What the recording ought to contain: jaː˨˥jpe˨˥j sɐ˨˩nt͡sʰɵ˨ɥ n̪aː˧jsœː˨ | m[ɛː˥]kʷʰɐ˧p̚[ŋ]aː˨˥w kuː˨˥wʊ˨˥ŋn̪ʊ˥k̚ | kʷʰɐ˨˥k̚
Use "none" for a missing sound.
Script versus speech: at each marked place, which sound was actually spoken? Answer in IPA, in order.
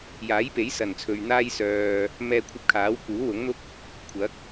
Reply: ɛː˧, kʰ

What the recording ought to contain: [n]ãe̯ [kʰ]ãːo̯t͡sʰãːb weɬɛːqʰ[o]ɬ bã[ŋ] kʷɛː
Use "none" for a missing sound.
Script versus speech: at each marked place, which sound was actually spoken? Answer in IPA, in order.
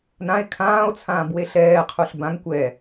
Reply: n, kʰ, u, ŋ

